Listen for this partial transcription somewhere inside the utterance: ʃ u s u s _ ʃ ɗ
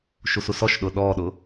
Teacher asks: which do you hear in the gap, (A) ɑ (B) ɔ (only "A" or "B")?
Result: B